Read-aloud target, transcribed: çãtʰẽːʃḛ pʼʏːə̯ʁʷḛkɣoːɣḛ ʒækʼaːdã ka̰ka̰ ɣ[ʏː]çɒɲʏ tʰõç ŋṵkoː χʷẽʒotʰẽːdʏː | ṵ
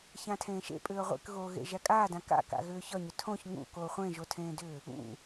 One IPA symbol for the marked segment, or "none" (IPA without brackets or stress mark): ʏː